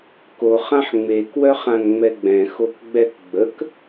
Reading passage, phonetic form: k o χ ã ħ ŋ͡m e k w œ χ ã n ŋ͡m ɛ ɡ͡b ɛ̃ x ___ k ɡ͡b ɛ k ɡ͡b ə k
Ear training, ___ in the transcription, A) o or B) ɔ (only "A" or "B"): A